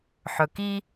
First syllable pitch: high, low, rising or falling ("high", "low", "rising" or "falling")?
low